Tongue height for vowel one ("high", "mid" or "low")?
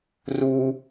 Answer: high